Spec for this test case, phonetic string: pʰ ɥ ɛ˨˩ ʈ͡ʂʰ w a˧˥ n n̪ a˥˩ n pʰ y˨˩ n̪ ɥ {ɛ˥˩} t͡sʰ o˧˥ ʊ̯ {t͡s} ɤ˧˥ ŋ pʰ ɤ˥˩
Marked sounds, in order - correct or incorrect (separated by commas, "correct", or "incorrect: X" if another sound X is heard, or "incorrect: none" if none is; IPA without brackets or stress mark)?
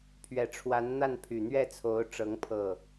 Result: correct, incorrect: ʈ͡ʂ